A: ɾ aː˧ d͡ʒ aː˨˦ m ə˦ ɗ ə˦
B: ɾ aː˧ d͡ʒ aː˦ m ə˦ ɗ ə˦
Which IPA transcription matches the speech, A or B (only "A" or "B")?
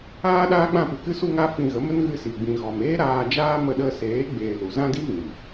B